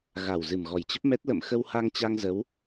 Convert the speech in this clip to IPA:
ɣ a˨˩ w z ɨ˨˩ m ɣ ɔ˨˩ j t͡ɕ ə˦˥ p̚ m ɛ˦˥ t̚ l ə̰˧˨ m x ə˧ w h a˧ ŋ t͡ɕ a˧ ŋ z ə˨˦ w

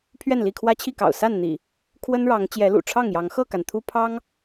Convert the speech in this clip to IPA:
pʰ ɥ ɛ˥˨ n l i˥˨ kʰ w ä˦ t͡ɕʰ i˥˨ k ɑ̰˨˩ ʊ̯ s a˥˨ n n̪ ḭ˨˩ | kʰ w ə˦ n ɻ ɑ˨˦ ŋ t͡ɕ j ɛ˨˦ l ṵ˨˩ ʈ͡ʂʰ ɑ˥˨ ŋ j ɑ˨˦ ŋ x ɤ˥˨ k a˩ n t̪ʰ u˦ pʰ ɑ˦ ŋ

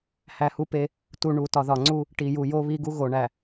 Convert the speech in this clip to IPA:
h æ˨ h u˦ p e˦ | t u˨ ɳ u˨ t ɒ˨ ð ɒ˨ ŋ͡ǀ u˦ | ʈ i˨ j u˨ j o˦ β i˦ ɡ u˦ ɣ o˨ ɳ æ˨

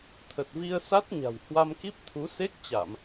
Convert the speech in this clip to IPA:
t̪ʰ ə˨˩ t̚ v i˧ ə̯ s a˦˥ t̚ ɲ a̤˨˩ w h w a˧ m k i˦˥ p̚ t̪ʰ u˨˦ s e˦˥ k̚ t͡ɕ a˧˩˨ m

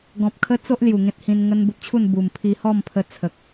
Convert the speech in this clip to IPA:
ɡ ɔ̃˨ p̚ kʰ ə˦ t͡s o˦ ʔ l j u˨˩ ŋ ẽ˦ t̚ h ĩ˧ n ŋ ə˦ n b u˨ t̚ t͡ɕʰ u˥˧ n b u˨˩ m pʰ i˧ h ɔ˥˧ m pʰ ə˧ t͡sʰ ə˨ k̚

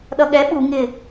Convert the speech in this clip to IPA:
ɗ ʌ ɠ ɛ ɓ u ŋ ɪ

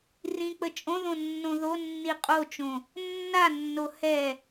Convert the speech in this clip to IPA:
r ĩ k͡p ə t͡ʃʼ õ ð õ nː õ ð o nː i qʼ o t͡ʃ õ | nː a nː o h ɛ

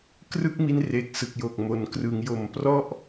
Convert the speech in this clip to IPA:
k r ɯ˥˩ k̚ m i˧ n r e˨˩ k̚ s ɯ˨˩ k̚ j o˨˩ k̚ m o˩˦ n k r ɯ˩˦ ŋ j o˨˩ m p r ɔ˥˩ ʔ

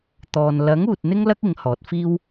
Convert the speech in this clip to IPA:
t̪ ɔː˨ n l ɐ˨˥ ŋ uː˨ t̚ n̪ ɪ˥ ŋ l ɐ˥ k̚ ɪ˨˥ ŋ h ɔː˨˥ t̚ f iː˥ w

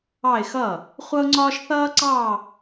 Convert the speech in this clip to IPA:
ɑ˥˧ ɪ̯ x ʌː˥˩ | χʷ ʌ˥ ʊ̯ ŋ͡ǀ ɒː˥ ʃ θ ʌː˥ ǀ ɑː˥˧

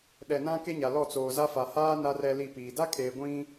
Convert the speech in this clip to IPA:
ɗ ɛ˨ n ã˦ k e˦ ɲ a˨ l ɔ˦˨ t͡s oː˨ z a˦ f a˨ h aː˦ n a˦ r ɛ˦ l i˦˨ p iː˨ d a˦ kʼ eː˨ ɡʷ ĩ˦

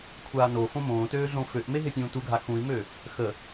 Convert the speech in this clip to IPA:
kʷʰ aː n o f õ m õː t øː ɮ õ f ø ʔ m e ɦ e pʲ ũː t u ɡʱ a x ũ i̯ m ø | x ə

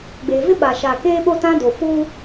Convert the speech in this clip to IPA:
ɡ͡b e˨ v ɪ˦ ɓ a˨ ʃ a˨ k eː˦ ɓ o˦ t ã˦ d o˨ f uː˦

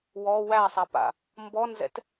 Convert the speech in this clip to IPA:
w ɔ w æ sˤ a p a̰ | m b ɔ n z ɛ̰ t

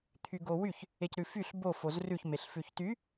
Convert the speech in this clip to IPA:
t̪ʰ y ɡ o w y ç | e c ɾ ʉ f y ɬ b o f o z r ʉ ç m e ɬ f ʉ ç t y

